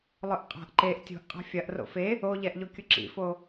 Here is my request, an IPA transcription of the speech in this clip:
lˠʊʔqʼa̤ʔ ǃeʔ tʲo̤ʔqʼa̤ fʲɐʔro̰ fe | oʎɛʔʎokʲʊ ǁḭfo

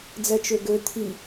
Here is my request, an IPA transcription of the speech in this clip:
d͡zɛt͡ʃøɡø t̪ʰi

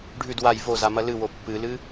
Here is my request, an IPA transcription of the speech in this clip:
ɖʱʉd waj vozamɐ lɨwo pːɨlɨ

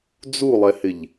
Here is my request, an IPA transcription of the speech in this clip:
d͡zulˠɛhɪʎ

